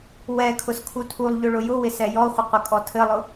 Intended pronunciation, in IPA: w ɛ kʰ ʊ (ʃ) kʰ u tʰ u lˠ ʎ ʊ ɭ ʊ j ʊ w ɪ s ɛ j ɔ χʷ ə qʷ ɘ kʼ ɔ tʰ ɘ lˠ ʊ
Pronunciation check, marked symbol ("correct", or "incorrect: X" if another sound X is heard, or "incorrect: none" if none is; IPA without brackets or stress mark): incorrect: s